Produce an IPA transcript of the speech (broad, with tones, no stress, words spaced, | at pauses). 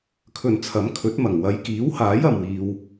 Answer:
kʰɵ˨nt͡sʰɐ˨˥m kʰɵ˨˥t̚mɐ˨˩ŋ wɐ˨˧jkiː˨˥whaː˨˥j ɐ˨mwiː˧w